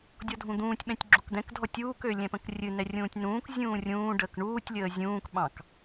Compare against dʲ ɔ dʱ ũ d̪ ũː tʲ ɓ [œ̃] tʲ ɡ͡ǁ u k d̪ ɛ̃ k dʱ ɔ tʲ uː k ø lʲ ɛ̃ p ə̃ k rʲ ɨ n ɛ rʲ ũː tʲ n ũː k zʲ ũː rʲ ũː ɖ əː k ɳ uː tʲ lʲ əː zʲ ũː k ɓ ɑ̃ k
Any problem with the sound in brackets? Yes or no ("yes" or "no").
yes